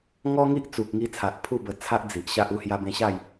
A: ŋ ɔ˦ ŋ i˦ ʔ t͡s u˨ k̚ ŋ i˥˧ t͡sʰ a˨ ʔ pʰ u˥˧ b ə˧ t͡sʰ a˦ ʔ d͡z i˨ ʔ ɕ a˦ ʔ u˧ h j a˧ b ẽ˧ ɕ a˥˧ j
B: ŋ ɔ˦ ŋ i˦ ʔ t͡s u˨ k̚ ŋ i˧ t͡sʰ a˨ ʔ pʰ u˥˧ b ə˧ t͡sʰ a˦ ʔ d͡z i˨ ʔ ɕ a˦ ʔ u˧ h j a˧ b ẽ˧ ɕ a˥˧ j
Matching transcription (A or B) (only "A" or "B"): B